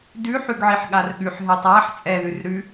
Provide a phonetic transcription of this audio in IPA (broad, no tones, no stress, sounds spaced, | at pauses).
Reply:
d ʉ ħ ʉ ɡ ʕ i ħ ɠ a r ɠ ʉ ħ ɦ ɛ tˤ a ħ t͡sʼ ɛ ð ʉ r ɾ ʉ